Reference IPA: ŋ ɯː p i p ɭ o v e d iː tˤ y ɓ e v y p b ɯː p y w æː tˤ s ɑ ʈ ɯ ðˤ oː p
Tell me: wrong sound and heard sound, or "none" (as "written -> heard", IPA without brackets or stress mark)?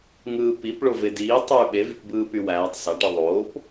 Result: none